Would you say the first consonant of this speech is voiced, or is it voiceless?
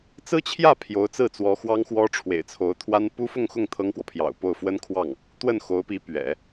voiceless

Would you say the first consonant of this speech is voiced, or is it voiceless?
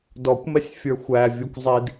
voiced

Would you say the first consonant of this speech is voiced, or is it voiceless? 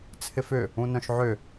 voiceless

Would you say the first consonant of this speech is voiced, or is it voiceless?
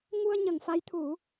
voiced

